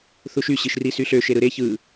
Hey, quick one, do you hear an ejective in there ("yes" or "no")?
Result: no